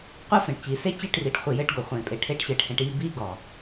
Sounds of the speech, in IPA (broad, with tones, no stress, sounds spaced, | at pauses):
qʷ e˦ f ẽ˨ ʈ t͡ɕ iː˨ s e˦ t͡ɕ e˦˨ ʈ r i˨ ʈ χʷ i˨ j ɘː˦ ʈ ɡ o˨ χʷ ẽː˨ pʼ e˨ ʈʰ e˨˦ ʈ ɕ ɘː˨ ʈ h ẽ˨ ʈ iː˦˨ b iː˦ ɡ ɔ˨